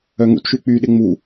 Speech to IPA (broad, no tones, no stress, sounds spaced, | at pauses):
œ ŋ ṵ t ʃ y k͡p y ɗ ɪ ŋ͡m u